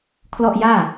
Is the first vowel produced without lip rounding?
no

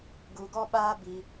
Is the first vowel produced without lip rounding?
no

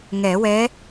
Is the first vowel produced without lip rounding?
yes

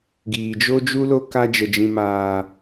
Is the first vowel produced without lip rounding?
yes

